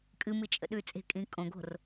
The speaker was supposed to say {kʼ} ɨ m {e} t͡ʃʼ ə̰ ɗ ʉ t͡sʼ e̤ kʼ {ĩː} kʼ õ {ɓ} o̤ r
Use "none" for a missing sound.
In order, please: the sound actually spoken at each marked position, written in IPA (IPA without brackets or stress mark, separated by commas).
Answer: kʼ, ɨ, ĩː, ɡ